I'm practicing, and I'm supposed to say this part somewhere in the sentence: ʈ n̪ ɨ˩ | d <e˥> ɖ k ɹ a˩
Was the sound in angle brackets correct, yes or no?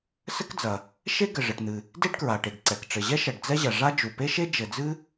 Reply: yes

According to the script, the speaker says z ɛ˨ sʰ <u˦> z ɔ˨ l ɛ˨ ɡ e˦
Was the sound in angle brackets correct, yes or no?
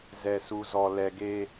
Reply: no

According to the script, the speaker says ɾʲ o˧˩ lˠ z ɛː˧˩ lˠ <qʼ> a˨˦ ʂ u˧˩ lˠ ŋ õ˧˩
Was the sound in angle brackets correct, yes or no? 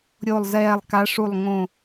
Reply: no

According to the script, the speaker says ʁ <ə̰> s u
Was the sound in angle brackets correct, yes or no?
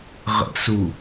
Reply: yes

